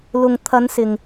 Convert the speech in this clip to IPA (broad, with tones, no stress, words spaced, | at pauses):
lʊ˨ŋt̪ʰɐ˨˧nsɪ˨ŋ